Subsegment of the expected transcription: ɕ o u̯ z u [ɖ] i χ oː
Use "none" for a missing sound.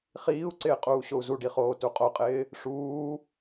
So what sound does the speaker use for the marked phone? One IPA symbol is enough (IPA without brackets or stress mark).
ɖ